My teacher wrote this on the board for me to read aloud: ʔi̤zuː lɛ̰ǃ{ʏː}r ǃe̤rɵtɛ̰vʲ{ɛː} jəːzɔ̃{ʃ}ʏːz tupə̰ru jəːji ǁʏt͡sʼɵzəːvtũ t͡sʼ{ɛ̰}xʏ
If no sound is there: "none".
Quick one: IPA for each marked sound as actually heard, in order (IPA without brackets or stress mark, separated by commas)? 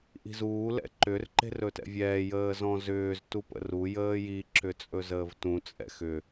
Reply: ʏ, ɛː, z, ɛ̰